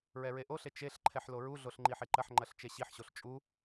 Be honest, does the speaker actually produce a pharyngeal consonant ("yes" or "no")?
yes